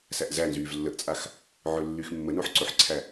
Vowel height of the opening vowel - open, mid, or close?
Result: open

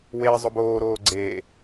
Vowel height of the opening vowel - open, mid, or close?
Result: mid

